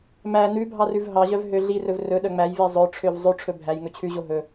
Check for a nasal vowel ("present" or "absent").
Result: absent